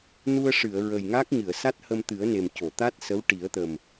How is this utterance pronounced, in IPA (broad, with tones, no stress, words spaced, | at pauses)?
nu˧ə̯ʂɨ˨˩˨ə̯ ɹə˨˩jŋa˦˥k̚ ɲɨ˨˩˨ə̯ sa˦˥t̚hə˧mt̪ɨ˨˩˦ə̯ne˨˩m co˨˩˨t̪a˦˥t̚ sə˧˥wʈi˨˩˦ə̯t̪ə˨˩m